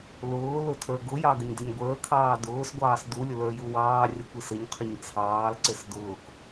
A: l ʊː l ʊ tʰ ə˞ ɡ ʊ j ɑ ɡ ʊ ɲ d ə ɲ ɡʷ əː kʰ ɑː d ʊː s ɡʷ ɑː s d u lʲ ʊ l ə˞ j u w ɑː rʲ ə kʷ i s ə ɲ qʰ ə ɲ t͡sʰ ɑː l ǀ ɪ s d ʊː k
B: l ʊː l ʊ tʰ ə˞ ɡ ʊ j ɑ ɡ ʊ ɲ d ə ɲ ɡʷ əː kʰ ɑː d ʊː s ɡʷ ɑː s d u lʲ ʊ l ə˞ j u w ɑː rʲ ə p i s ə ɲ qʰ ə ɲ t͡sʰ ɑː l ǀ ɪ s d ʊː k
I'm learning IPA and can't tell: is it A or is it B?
A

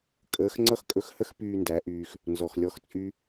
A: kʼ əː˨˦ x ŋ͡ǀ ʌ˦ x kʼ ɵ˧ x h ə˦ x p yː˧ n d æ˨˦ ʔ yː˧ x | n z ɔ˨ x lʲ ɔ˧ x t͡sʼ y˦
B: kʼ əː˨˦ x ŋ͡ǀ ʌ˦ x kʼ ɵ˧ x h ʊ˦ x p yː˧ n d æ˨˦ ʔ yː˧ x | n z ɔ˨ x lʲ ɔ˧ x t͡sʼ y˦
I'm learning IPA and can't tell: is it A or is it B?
A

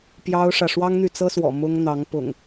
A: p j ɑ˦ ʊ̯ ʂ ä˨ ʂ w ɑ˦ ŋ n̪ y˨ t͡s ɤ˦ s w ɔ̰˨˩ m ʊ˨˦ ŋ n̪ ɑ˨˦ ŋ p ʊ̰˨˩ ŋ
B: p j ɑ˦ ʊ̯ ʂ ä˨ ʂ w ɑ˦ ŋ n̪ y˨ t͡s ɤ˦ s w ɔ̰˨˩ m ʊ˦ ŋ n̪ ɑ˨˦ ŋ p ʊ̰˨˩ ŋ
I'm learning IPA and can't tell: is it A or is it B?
B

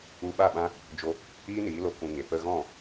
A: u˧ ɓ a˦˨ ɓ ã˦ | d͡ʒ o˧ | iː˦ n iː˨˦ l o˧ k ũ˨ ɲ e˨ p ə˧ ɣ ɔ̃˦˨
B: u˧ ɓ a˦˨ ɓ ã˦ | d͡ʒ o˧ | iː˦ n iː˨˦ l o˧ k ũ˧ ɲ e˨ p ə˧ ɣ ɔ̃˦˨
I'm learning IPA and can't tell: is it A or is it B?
B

